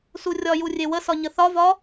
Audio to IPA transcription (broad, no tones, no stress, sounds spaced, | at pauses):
s u rʲ ɒ j u rʲ e w ə s ɒ ɲ ə θ ɒ v ɒ